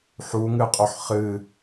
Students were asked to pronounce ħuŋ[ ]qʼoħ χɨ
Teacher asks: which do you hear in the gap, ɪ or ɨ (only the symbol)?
ɨ